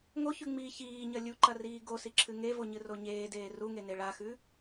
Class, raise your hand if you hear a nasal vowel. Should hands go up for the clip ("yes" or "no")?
no